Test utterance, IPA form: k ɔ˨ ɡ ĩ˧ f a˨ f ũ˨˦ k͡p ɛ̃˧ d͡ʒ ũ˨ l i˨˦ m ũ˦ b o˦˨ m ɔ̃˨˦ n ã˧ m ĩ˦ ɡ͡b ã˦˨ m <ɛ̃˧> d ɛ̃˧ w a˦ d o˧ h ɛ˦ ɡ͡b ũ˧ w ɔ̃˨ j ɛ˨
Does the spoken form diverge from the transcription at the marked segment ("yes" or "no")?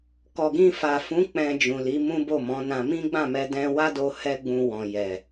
yes